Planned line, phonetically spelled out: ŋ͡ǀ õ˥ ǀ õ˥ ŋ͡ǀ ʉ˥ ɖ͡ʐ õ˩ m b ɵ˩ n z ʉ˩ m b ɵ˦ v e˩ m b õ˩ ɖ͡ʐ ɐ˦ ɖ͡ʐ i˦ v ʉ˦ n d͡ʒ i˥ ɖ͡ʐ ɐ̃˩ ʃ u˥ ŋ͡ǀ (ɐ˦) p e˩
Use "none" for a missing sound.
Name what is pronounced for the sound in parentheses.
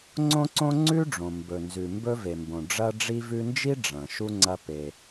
ɐ˦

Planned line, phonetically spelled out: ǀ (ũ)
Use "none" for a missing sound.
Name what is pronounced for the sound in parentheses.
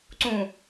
ũ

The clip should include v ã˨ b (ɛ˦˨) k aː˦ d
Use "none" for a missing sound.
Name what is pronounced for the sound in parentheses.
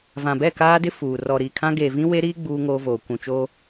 ɛ˦˨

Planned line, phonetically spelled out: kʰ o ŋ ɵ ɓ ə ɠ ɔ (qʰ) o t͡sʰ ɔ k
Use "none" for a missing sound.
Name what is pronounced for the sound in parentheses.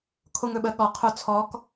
qʰ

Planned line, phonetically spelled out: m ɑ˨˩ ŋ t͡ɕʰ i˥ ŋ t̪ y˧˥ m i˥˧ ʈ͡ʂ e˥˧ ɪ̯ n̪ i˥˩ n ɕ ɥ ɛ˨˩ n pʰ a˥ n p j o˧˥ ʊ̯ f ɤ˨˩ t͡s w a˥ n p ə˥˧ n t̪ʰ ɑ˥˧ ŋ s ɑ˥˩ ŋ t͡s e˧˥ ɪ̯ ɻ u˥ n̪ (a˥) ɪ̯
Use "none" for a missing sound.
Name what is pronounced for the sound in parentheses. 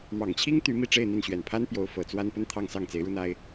a˥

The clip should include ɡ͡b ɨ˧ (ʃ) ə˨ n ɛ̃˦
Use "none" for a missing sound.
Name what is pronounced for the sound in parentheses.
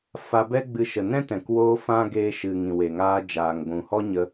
ʃ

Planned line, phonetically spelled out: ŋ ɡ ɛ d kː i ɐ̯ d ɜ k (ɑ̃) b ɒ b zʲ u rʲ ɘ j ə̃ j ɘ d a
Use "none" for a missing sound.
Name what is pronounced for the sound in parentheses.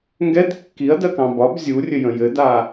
ɑ̃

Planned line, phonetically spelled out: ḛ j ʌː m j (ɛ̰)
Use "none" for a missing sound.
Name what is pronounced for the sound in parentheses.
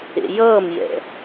ɛ̰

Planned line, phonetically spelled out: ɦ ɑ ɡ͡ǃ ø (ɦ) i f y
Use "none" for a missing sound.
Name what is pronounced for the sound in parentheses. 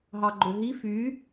ɦ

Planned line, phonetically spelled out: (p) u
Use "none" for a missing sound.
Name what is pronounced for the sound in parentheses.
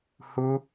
h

